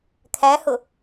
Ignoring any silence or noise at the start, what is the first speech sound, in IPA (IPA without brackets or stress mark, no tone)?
kʰ